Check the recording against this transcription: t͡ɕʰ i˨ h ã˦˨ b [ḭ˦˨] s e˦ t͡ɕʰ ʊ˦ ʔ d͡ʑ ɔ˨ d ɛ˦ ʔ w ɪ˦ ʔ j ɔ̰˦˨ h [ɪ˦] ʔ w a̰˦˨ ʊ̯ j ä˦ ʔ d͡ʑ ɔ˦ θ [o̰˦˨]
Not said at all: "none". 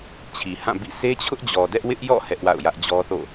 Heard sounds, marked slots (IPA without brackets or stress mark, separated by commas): ḭ˦˨, ɛ˦, o̰˦˨